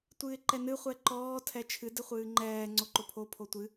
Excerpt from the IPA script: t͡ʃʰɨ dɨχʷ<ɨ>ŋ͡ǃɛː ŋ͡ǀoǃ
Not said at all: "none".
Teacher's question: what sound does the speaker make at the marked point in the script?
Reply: ɨː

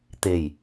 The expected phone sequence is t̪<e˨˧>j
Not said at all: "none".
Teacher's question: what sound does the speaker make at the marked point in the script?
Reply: e˨˩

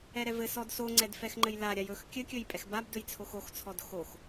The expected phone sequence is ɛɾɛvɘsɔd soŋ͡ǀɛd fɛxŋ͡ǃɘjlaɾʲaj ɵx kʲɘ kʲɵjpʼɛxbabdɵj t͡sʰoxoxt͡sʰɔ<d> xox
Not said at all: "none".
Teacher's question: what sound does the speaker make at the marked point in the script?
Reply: d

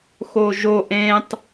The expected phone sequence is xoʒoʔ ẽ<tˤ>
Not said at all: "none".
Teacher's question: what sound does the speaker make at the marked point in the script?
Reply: tˤ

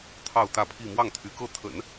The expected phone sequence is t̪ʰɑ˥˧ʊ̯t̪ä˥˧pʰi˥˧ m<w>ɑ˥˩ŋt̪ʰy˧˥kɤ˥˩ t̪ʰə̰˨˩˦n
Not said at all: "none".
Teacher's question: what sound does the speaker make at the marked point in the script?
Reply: w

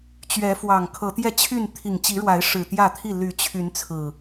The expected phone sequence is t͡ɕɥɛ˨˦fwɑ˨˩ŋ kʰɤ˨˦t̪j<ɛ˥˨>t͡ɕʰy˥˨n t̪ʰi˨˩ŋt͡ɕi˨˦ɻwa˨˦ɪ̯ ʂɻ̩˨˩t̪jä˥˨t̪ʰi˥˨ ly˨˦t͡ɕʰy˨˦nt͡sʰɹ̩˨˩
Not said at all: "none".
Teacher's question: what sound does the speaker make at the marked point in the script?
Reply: ɛ˥˨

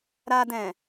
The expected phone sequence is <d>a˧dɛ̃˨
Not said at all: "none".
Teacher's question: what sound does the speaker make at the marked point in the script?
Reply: ɾ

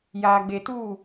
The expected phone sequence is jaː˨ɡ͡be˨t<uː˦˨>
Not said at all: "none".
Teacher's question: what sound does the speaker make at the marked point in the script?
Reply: uː˦˨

